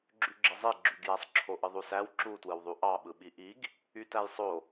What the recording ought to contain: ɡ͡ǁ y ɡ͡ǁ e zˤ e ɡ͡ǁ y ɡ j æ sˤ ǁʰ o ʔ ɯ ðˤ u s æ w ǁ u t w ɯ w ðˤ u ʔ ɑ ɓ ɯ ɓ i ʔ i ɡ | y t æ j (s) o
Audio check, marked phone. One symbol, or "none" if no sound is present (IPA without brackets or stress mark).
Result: sˤ